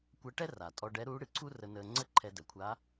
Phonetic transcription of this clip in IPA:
kʷəː˧˥ʈɛ˥ ra˩tʼɔ˧ɖɛ˧˥ɾuː˧˥ ɽɨ˩ǀʰu˥rə˧ nəː˧ŋ͡ǀə˥ ǃʰɛ˧də˩˧kʷʰaː˧˥

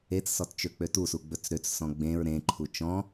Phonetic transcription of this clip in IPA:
et͡ssɔt t͡ʃøk͡pøtusu ɡ͡bɵt͡sɾøt͡ssɔ̃ ɡ͡bẽɹ ɾẽǃʰu t͡ʃɔ̃

